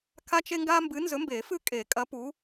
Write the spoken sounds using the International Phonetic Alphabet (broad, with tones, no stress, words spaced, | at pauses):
kʰa˥t͡ʃe˥ ŋɡa˥ mbɨ˨˦nzɵ˨˦mbe˨˩˦ fɨ˥˧kʼe˨˩˦ kʼɐ˨˦pu˨˦